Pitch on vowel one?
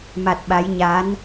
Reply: low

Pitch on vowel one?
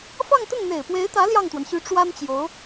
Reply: falling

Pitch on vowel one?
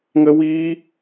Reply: high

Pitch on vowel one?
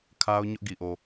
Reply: high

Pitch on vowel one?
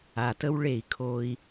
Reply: low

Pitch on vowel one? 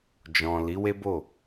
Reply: low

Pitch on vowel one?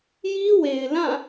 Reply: high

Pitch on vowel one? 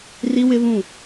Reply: high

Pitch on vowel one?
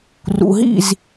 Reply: low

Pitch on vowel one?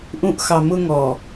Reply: low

